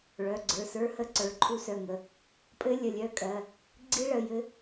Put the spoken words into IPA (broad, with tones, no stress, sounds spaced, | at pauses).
ɭ œ˩˧˩ ɡ͡ǀ ə˞˩˧˩ s ə˞˦˥ h ə˦˥ ǀ ə˞˩˧˩ ǃʰ u˦˥ s œ˩˧˩ ŋ ə˩˧˩ | pʼ ɘ˦˥ lʲ ə˩˧˩ lʲ œ˦˥ kʼ ɜ˩˧˩ | ɡ͡ǀ i˦˥ ɭ ə˩˧˩ j ɘ˦˥